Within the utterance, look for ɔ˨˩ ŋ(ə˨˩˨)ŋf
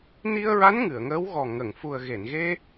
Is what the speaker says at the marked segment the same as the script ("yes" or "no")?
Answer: yes